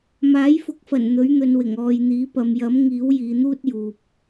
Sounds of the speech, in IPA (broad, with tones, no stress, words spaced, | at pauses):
maː˨˥jfʊ˨˥k̚fɐ˨˩n n̪ɵ˨˥ɥn̪ɵ˨˧nwɪ˨˩ŋ ɔː˨jn̪iː˨˥pɐ˨˧m jɐ˨˥mŋiː˨˥w jiː˨˧n̪uː˥t̚juː˨p̚